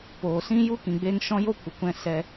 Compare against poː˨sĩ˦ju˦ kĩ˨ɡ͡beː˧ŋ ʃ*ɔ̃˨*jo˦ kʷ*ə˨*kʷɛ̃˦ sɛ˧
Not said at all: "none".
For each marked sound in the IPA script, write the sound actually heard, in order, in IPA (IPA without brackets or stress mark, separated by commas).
ɔ̃˦, ə˨